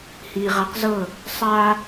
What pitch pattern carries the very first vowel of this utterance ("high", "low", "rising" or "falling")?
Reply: low